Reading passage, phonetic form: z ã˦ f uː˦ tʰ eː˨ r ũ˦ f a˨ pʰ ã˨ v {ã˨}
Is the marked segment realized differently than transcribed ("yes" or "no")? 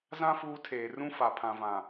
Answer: no